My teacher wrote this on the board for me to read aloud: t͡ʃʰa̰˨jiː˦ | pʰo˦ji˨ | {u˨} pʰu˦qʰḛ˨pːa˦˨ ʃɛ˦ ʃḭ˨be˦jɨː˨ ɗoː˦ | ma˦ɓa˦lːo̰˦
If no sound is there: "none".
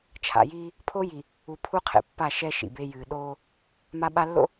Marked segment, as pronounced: u˨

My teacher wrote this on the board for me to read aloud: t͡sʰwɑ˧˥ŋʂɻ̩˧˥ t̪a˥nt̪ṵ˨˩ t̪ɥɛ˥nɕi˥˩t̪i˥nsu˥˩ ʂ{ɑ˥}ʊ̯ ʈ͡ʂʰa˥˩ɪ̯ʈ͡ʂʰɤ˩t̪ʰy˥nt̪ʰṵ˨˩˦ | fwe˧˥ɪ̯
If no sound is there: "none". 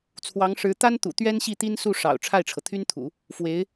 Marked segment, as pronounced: ɑ̰˨˩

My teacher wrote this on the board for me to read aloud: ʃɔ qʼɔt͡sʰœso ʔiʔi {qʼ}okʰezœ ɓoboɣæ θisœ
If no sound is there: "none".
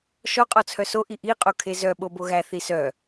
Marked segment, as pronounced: qʼ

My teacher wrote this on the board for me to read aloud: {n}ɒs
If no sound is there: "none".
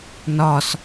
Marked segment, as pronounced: n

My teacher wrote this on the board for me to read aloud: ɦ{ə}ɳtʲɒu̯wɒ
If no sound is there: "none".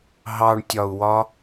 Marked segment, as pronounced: ɑ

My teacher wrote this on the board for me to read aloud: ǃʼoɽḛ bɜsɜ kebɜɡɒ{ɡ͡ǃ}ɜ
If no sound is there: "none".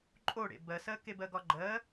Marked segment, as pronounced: ɡ͡ǃ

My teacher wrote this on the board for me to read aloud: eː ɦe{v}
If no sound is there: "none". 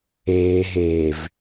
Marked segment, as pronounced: v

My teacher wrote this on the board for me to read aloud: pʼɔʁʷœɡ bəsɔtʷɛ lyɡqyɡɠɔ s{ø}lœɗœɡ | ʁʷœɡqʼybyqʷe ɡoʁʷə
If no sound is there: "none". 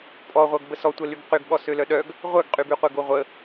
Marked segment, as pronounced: ø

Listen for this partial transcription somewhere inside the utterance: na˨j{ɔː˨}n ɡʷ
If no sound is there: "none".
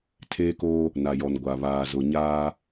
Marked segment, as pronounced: ɔ˨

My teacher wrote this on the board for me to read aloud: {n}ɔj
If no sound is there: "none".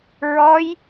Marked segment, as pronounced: ɹ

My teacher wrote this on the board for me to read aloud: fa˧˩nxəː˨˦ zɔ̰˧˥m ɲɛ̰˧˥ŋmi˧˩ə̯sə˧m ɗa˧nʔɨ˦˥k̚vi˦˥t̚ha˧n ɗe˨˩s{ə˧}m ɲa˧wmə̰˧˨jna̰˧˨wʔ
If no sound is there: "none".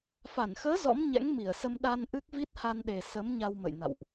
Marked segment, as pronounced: ə˨˦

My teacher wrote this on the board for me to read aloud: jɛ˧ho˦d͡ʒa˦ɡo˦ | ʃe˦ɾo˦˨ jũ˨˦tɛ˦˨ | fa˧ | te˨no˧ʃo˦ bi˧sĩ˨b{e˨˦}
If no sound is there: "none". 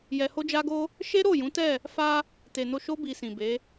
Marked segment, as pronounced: e˨˦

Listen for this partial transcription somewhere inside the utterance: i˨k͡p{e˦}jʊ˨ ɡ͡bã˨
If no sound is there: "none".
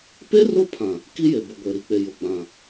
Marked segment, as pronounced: e˨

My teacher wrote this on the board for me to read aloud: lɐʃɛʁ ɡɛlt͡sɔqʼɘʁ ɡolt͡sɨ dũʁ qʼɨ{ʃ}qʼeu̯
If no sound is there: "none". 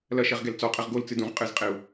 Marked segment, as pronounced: z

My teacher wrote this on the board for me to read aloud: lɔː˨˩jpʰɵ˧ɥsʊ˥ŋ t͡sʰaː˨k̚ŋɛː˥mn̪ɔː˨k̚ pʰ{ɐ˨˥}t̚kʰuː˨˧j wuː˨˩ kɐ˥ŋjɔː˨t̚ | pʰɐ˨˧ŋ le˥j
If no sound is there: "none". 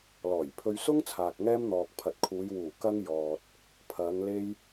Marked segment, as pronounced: ɐ˨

